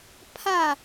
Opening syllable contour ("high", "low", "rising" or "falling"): falling